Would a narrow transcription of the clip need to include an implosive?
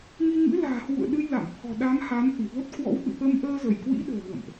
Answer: yes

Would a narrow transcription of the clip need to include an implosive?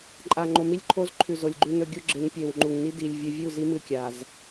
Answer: no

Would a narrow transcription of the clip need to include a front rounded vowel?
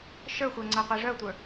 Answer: yes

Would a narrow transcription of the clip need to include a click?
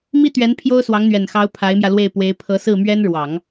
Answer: no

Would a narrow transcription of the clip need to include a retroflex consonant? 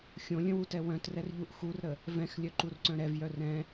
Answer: no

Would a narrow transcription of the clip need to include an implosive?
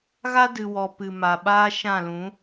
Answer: yes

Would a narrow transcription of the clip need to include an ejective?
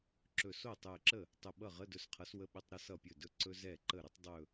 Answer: no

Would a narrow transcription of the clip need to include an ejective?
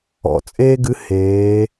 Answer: yes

